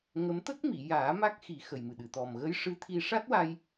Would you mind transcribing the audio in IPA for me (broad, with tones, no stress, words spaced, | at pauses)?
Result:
ŋə˧˥m t̪ə˦˥k̚mi˨˩˨jaː˨˩˦ ma˦˥k̚xi˨˩˦ xə˨˩jmɨ˨˩ɗɨ˨˩˨ t̪ɔ˨˩m ɣə˧˥jʂɨ˧˥t̪ʰi˧ ʂa˦˥t̚wa˧j